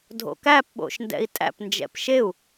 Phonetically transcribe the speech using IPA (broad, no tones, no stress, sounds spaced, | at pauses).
dʱ o̰ k æ p ɓ o̰ ʃ n d ɛ̰ i̯ tʼ æ̰ p n d͡ʒ ɛ̰ p ʃ e u̯